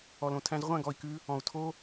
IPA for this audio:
ɔ˨lõ˨tʰæ̃˧z ʁʷæ̃˦˨ɡɔ˨i̯kʉ˧ | ɔ̃˨u̯ tʰo˦

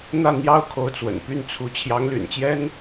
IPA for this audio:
n̪ä˥˩ n̪jɑ˥ʊ̯kʰo˧˥ʊ̯t͡swə̰˨˩n py˥˩nt͡sʰu˧˥ t͡ɕʰjɑ˧˥ŋly̰˨˩nt͡ɕjɛ˥n

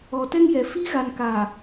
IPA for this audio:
ɔ˨tɛ˦ŋjɛ˨ fi˦ɣa˨nka˨

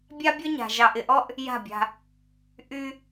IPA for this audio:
bʲa˦bʲɔ˦ɲa̤˨ ʒɑ˨ʔɪ˨ʔɔ˦ʔ | ja̤˦˨bʲa̤˦ | ʔy˦

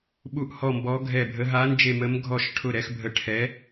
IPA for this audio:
ɓu˧˩ʔhɔ˧˩mbɔ˨˦ ɡʱɛ˧˩bʱə˨˦ ɦa˨˦nd͡ʒe˧˩ mə˨˦mɡʱɔ˧˩ʃʈʰʊ˧˩ ɾɛ˨˦xbʱə˧˩ ʈʰɛ˨˦

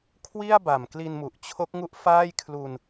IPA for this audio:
kʰwi˥˩a̯ ba˨˩mkli˧nmu˨˩ʔt͡ɕʰo˦˥k̚ ŋu˥˩ʔfaː˥˩j kʰlu˧n

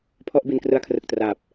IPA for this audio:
pʰɔ˥˩ʔbi˧nkrɯ˦˥a̯kʰrɯ˨˩k̚ traː˨˩p̚

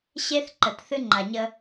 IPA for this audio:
ɕe˦θǃə˨t θɨ˦ŋ͡ǃa˨ɲə˦

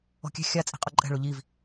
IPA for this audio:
ɔ̤kʲɛ̤ xʲa t͡sʼi̤qʼoǃʼɛ̤ ɭoʎiv

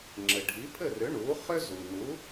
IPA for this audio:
ŋ͡ǁɘ˩ɖʱi˩˥pʰɘ˥˩rʏ˩˥ ɳu˩˥ χʏ˥zu˩nu˩˥

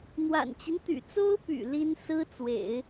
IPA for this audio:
n̪wa̰˨˩nt͡ɕi˦nt̪y̰˨˩ t͡so˥ʊ̯py̰˨˩ li˥n sɹ̩˥t͡swḛ˨˩˦ɪ̯

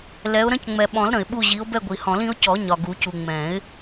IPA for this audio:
lɛ˨˦ʊ̯ɾə̃˦c ŋ͡mɛ˨ɓɔ̃˨˩˦l ɾə̃˨ɪ̯ɓu˦˨ ʑi˨˦ʊ̯bɛ˦˨ɡʷi˨ hɔ̃˨˩˦lĩ˨˦ʊ̯cɔ˨˩˦ ɲɒ˨ɡu˨˩˦cu˨ ŋ͡mɛ̃˨˩˦ɪ̯

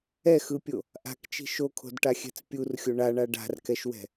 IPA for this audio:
ɛxɯpʲo | ʔa̤kt͡ʃi̤ ʃokʰo̤dʈaxʲɛ̤t͡s pʲurxʲo ɳaɳa ɖa̤rkɛʃwɛ̤

